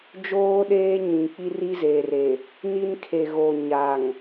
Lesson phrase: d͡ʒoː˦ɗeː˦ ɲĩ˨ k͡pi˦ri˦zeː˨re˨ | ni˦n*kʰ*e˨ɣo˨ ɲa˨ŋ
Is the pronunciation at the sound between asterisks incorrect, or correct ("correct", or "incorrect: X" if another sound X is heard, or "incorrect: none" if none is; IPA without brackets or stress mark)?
correct